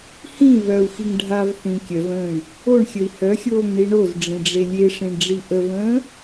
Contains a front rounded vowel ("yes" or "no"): yes